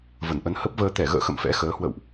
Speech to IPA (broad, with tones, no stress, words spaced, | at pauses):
və˧˩nʔə˨˦n hə˦˥p̚vəː˧ t̪ɛ˧˩ɣə̰ː˧˨xə̰˧˨m fɛ̰˧˥xəː˨˦ hwə̰˧˨wʔ